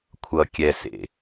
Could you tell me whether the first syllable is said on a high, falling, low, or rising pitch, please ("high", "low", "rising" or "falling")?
low